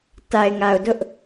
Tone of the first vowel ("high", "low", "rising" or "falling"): low